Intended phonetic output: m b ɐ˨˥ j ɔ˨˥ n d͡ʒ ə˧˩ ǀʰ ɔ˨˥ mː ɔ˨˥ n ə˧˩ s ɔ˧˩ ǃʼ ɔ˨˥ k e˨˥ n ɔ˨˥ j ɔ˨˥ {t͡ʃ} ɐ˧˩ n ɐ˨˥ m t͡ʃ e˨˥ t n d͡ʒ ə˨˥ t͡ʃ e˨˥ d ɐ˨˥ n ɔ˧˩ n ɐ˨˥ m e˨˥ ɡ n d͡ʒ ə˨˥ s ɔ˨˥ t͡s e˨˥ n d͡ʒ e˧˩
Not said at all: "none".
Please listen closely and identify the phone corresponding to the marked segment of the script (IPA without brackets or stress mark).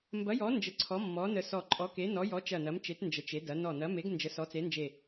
t͡ʃ